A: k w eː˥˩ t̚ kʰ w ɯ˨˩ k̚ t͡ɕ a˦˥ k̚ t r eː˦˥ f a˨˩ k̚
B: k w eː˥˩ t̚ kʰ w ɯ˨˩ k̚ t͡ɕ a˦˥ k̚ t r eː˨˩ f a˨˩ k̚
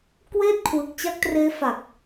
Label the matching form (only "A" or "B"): A